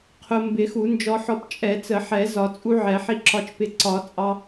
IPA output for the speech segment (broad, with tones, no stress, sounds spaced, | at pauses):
qʰ ʊ˧ m b ɪ˨˩˦ x u˨˩˦ n d͡ʒ ɔ˧ ħ ɔ˧ p t͡ʃʼ ɛ˨˩˦ t͡s ə˨˩˦ ħ ɛ˨˩˦ z ɒ˨˩˦ t͡sʼ u˧ ʕ ɛ˨˩˦ ħ i˧ ǁ ɒ˧ t͡ʃ p ɪ˧ ǀ ɒ˨˩˦ t͡sʼ ɑ˧